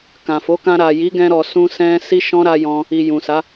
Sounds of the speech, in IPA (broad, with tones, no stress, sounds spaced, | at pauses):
k ã˨ f o˨˦ k ã˧ ɾ a˨ j i˨˦ ɡ ɛ̃˧ ɾ ɔ˨ s ũ˧ s ɛ̃˧ s i˦ ʃ ɔ̃˦ ɾ a˧ j ɔ̃˦ | i˨ j ũ˨ s a˨˦